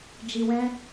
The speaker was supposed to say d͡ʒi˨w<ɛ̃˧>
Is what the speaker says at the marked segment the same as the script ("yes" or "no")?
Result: yes